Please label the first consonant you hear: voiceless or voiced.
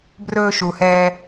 voiced